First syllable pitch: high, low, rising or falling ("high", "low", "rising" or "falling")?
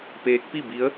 rising